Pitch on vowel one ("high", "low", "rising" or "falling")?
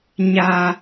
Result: high